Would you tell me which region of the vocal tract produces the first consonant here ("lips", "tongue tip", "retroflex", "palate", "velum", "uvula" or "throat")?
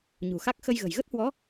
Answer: palate